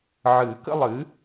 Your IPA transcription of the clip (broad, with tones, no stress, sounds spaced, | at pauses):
ʕ ɨ˨˩˦ k ə̰˥˧ lˠ ɨ˩˥